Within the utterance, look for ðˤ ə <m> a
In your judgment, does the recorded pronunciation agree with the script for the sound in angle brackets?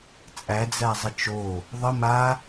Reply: yes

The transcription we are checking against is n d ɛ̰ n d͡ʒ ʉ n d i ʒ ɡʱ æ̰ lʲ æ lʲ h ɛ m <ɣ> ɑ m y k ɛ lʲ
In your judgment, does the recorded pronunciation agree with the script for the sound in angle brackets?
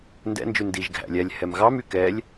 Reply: yes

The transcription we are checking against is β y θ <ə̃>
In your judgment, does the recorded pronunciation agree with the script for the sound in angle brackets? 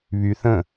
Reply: yes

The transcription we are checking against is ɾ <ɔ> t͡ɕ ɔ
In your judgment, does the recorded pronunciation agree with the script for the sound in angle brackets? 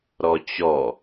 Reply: yes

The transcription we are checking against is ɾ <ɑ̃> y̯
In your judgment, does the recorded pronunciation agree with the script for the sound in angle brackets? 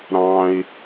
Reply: yes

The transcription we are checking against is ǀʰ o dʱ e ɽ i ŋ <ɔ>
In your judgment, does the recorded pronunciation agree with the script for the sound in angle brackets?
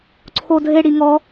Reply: yes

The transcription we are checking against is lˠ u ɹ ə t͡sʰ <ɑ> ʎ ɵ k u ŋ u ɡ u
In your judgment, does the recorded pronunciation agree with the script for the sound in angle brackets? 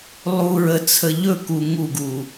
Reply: no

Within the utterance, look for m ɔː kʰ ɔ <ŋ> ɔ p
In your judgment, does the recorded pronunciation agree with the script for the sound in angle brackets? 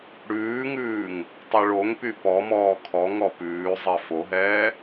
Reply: yes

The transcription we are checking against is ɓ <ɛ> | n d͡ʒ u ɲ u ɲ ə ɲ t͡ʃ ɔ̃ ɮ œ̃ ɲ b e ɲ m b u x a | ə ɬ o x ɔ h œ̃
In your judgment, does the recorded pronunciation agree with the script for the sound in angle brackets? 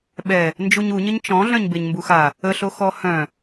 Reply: yes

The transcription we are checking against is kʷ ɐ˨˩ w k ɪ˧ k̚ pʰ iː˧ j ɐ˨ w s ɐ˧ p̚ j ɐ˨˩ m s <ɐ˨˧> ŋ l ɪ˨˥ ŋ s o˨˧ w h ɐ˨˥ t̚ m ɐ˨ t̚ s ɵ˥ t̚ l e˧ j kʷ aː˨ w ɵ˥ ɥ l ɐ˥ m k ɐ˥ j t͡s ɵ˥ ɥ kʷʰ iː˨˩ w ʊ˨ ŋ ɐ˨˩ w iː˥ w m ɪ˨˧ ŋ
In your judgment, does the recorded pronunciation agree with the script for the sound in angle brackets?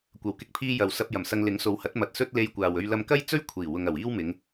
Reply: no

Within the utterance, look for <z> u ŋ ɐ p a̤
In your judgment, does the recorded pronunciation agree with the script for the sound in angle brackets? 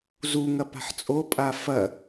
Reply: yes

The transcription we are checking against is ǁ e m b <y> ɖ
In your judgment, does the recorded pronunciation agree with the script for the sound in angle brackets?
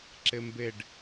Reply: no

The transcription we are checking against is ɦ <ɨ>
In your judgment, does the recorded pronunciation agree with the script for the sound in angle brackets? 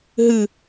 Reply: yes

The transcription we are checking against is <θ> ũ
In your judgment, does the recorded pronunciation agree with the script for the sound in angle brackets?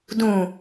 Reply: no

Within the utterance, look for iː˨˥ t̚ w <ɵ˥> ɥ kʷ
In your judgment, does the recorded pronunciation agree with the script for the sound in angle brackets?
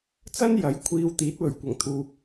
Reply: no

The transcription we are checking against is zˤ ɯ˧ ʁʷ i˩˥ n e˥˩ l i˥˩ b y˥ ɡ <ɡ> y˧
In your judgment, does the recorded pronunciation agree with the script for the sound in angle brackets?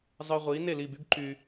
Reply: no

